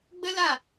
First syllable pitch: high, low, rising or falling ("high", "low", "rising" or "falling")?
high